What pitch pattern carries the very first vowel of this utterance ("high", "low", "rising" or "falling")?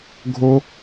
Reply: high